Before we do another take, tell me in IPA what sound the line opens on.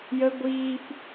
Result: j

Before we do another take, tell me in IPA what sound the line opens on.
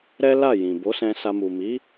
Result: ɾ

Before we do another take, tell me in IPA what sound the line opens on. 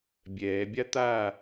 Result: bʲ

